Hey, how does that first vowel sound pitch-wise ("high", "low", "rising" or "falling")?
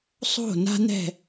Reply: falling